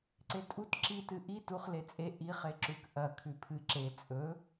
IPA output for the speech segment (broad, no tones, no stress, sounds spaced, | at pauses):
ǀ e tʼ u t ǁ i t ɨ ʔ i t u χ l e t͡sʼ e ʔ i χ e ǁ ʉ k ʔ ɐ kʰ ʉ pʰ ɨ ǁ e t͡sʼ ɵ